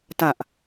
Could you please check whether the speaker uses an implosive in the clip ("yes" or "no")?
no